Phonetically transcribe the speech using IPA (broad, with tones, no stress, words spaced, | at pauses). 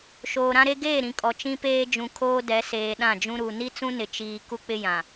ʃoː˨ɾã˦ɾe˦ ɡeː˦˨ ɾĩ˨kʼɔ˨ t͡ʃĩ˦peː˦ d͡ʒũ˨kʰoː˦dɛ˨˦ seː˨ɗã˦˨d͡ʒũ˦ ɾu˨ ni˦t͡sũ˦nɪ˨ t͡ʃiː˦ ku˦k͡pɪ˦ jã˨